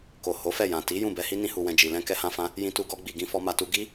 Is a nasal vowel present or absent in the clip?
present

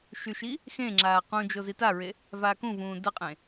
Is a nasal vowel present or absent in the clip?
present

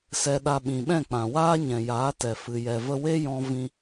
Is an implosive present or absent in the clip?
present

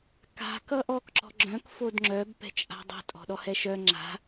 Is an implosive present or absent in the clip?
present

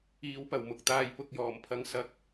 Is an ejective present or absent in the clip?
absent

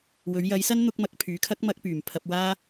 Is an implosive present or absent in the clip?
absent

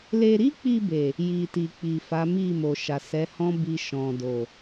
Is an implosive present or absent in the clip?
absent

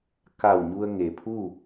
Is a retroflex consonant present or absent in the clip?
absent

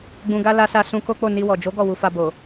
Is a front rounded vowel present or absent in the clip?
absent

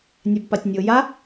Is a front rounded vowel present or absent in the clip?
absent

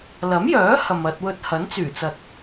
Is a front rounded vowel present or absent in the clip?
present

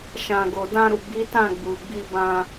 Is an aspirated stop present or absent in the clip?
absent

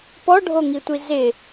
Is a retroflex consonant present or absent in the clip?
present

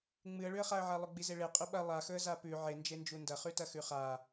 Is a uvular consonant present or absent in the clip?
present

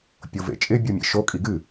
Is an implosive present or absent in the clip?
absent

